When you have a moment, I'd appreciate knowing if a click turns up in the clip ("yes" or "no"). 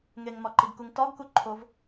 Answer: yes